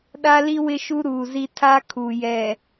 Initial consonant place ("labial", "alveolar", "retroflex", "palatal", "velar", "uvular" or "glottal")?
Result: alveolar